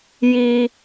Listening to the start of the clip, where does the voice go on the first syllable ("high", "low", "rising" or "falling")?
high